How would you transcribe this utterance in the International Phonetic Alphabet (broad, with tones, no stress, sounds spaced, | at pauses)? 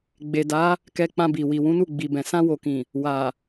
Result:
ɡ͡b e˨ d a˨˦ | k ɛ˧ k͡p ã˧ b i˨ w i˨ w ũ˨˦ n u˦˨ ɡ͡b i˨ b ɛ̃˨ s ã˧ w o˨ k ĩ˨ | w a˨